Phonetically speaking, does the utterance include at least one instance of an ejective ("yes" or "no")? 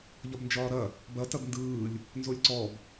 no